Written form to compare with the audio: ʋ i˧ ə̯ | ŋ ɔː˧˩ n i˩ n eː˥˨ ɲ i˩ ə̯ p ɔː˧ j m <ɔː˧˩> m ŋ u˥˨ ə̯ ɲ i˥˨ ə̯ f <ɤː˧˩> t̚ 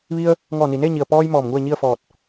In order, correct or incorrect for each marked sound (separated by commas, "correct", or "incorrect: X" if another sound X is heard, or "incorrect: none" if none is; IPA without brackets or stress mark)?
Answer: correct, incorrect: ɔː˧˩